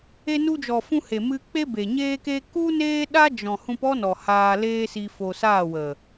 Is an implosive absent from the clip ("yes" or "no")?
no